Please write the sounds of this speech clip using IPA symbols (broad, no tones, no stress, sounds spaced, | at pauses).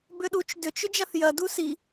b ʏ ɗ u t͡ʃ d ʏ t͡ʃ ʏ d͡ʒ a θ j ɐ d u s i